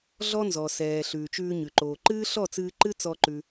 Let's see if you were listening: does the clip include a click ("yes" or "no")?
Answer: yes